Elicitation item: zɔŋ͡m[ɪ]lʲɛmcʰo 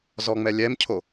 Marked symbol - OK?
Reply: no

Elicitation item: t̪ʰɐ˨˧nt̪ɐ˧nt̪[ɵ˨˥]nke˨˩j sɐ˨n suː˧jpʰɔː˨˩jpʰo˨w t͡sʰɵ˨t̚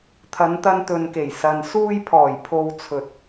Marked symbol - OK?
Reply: no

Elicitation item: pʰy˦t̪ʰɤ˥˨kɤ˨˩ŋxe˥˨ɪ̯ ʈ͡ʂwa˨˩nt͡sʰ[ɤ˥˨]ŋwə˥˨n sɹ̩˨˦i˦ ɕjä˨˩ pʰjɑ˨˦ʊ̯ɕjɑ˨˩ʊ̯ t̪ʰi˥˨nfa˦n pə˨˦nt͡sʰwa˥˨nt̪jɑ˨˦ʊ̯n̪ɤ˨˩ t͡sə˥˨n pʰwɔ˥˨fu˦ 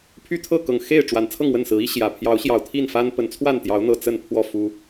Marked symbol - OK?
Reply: yes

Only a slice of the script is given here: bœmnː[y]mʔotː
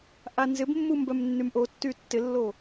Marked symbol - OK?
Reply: yes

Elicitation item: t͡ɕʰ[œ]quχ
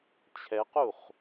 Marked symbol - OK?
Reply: no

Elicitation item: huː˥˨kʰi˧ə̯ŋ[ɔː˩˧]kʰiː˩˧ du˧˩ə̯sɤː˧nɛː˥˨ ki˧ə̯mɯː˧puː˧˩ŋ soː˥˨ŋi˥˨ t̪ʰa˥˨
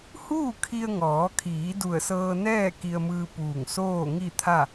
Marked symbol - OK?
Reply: yes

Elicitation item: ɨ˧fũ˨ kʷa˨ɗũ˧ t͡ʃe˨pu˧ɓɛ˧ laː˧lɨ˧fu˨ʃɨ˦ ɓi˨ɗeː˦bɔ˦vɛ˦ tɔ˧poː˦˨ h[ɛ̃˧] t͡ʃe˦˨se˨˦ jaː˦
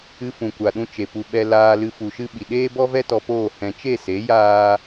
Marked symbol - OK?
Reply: yes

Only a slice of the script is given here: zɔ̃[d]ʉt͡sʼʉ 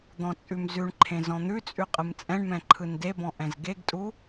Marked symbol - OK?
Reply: no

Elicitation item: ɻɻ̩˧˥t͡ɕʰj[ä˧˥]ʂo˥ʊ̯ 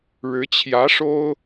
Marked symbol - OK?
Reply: yes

